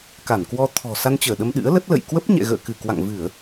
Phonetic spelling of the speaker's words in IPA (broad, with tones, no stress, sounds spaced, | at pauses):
k a˧˩ n k w ɔ˧ t̪ʰ ɔ̤˨˩ s a˧ n t͡ɕ əː˧˩ ɗ ə˧ m ɗ ɨ̰˧˥ ə̯ l ə˦˥ t̚ l ə̰˧˨ j k w ə˦˥ p̚ ɲ ɛ̰˧˨ ɣ ə̰ː˧˨ k ɨ˧˩ k w a̰˧˨ ŋ v ɨ˧˩˨ ə̯